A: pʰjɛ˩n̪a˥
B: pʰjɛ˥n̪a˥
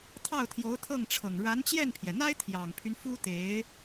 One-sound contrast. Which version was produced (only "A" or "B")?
A